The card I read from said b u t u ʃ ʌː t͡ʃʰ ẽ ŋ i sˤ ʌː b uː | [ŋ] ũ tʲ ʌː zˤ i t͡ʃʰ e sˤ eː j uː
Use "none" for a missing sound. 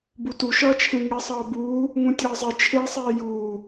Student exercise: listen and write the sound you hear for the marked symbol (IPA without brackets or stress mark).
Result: ŋ